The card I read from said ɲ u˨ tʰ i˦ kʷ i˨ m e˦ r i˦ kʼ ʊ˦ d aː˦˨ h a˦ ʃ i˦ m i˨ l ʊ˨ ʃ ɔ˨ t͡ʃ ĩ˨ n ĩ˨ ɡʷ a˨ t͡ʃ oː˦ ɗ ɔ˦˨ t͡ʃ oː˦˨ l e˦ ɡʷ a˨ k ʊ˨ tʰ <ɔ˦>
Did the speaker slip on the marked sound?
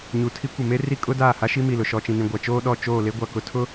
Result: yes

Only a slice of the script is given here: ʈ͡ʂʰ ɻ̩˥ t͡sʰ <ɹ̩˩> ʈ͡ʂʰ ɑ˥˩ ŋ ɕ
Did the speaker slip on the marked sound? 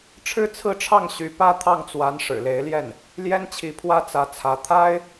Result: yes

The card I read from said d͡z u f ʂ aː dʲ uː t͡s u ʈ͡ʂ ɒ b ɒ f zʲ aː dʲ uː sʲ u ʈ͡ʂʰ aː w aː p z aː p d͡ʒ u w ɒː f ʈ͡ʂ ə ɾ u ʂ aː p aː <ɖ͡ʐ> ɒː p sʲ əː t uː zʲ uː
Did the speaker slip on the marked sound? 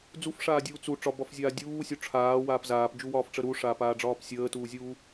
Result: no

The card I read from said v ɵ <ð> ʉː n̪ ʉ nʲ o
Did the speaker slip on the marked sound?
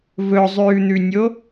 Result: yes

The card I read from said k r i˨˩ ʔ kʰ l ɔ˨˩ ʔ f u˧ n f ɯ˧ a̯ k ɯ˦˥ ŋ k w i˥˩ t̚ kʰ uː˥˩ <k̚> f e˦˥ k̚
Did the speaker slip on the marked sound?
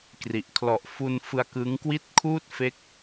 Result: yes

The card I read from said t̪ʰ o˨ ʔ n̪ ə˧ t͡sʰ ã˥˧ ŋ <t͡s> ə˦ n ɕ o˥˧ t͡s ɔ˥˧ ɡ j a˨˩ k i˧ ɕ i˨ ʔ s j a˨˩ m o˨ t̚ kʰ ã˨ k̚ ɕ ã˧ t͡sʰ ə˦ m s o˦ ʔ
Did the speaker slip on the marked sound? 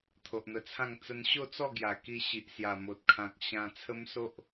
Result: no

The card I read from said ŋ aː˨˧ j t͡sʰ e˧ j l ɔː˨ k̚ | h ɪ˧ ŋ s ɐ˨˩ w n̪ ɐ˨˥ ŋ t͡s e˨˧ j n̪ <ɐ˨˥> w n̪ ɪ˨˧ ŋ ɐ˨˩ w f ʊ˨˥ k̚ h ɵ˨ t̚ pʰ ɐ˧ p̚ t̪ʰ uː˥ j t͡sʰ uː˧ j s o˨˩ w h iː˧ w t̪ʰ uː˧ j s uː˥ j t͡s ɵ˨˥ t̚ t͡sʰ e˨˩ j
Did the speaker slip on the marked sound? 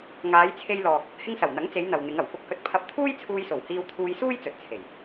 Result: yes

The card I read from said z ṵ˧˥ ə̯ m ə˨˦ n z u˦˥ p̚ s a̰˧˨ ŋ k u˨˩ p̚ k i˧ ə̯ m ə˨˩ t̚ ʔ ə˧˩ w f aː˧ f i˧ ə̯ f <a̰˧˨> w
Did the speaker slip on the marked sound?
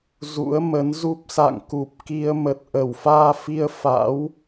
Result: yes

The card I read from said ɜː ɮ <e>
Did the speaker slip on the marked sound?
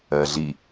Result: yes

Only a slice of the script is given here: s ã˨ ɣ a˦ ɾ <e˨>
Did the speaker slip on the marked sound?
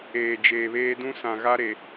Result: no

